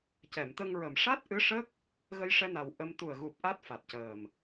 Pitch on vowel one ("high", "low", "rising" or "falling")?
low